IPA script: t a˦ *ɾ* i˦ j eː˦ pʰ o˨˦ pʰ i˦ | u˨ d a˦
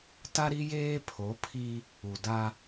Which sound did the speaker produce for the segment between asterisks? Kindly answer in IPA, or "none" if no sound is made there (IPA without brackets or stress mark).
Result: ɾ